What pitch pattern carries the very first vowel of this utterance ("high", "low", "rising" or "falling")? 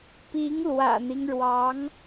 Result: rising